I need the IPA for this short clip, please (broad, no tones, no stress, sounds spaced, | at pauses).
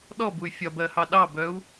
ɗ ɔ b u y̯ fʲ ɒ b ɜ h ɑ ɗ ɑ b œ u̯